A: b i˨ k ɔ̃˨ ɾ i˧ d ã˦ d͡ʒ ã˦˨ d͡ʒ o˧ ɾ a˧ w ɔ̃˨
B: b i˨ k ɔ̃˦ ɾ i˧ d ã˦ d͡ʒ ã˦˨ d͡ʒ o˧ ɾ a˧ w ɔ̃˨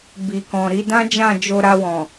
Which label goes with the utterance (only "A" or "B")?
A